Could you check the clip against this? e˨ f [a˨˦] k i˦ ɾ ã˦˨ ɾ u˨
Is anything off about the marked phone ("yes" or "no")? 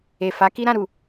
no